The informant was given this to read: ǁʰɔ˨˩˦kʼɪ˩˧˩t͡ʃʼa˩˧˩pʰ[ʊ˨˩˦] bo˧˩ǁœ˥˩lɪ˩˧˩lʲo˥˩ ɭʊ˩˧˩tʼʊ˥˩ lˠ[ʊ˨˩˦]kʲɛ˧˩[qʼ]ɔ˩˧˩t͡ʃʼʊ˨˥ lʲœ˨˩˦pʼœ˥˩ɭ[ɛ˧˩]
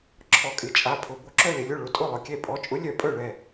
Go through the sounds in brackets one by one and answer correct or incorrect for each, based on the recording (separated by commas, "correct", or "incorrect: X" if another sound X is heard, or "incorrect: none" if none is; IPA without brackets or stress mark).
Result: incorrect: ʊ˩˧˩, incorrect: ʊ˩˧˩, incorrect: pʼ, correct